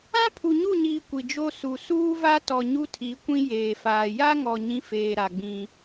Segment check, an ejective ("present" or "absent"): absent